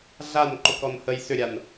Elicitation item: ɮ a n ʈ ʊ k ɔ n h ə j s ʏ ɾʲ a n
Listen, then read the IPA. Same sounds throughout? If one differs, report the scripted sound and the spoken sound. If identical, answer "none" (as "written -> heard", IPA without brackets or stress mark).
ʈ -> ǃ